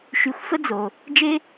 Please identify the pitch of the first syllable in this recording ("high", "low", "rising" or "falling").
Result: low